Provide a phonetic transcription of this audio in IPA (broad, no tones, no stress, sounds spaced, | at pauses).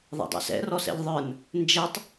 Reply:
ðˤ ɛ̰ dˤ ɛ̰ s ɛ̰ r ɔ s ɛ̰ ʎ ðˤ ə˞ n | n d͡ʒ ɛ tˤ